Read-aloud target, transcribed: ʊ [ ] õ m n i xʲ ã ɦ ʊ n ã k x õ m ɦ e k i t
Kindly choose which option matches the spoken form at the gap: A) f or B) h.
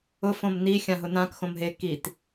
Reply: A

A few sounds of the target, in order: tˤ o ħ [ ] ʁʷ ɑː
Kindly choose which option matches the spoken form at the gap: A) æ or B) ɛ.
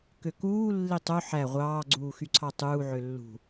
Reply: A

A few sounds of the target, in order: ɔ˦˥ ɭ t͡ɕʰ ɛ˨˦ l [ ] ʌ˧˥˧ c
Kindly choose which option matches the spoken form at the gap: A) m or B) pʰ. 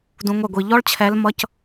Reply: A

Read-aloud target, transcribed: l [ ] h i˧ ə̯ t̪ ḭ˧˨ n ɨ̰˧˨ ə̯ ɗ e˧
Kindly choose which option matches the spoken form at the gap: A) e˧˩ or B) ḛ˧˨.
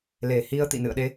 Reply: A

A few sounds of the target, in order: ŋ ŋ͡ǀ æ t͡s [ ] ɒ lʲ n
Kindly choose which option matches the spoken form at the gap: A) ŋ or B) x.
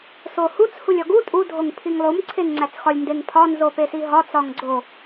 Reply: B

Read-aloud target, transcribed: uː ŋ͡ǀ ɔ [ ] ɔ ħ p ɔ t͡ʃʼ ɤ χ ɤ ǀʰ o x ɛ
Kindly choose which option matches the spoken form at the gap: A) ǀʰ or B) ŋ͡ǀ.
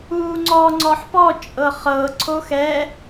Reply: B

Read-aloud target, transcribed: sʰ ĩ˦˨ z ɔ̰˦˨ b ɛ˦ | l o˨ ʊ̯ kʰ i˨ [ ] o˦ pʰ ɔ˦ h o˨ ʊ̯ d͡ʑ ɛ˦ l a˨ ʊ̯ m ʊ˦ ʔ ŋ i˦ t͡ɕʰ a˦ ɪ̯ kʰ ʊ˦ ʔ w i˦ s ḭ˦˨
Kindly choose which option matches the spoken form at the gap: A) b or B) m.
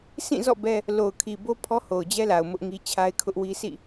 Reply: A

